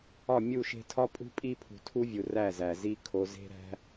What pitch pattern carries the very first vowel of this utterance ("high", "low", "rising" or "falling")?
falling